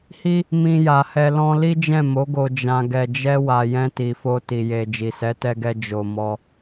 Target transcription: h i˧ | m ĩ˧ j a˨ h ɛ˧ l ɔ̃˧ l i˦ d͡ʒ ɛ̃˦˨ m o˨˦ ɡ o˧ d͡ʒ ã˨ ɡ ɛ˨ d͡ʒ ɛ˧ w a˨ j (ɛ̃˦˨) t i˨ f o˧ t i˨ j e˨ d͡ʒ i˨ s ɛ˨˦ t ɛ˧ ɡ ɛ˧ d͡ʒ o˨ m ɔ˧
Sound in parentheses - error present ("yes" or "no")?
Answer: yes